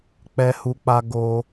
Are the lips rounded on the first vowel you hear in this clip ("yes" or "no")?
no